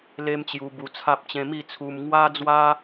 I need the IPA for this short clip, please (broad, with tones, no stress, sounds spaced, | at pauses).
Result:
l e˦ m t͡ɕ j u˧ b u˧ t͡sʰ a˦ p̚ t͡ɕ ẽ˧ m i˥˧ t͡sʰ u˧ m ŋ w a˦ d͡z w a˦